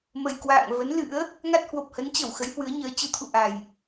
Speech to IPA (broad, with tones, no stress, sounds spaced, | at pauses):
m ə˨˩ j k w a̰ː˧˨ ŋ v ə˨˦ n l ɨ̰˧˥ ə̯ | ŋ a˦˥ t̚ h w o˨˩ p̚ h ə˨˦ n t͡ɕ ə˧˩ w x ə˨˦ j h w ɨ˨˦ ə̯ ɲ əː˨˦ t͡ɕ ɨ˧ t̪ʰ ṵ˧˨ ʔ a˨˩ j